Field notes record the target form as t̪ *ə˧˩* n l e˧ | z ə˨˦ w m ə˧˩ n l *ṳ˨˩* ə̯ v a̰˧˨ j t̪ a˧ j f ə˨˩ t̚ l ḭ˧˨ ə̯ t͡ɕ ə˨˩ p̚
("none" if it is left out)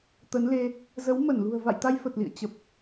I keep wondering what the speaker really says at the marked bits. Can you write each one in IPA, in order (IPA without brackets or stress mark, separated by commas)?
ə˨˦, ṳ˨˩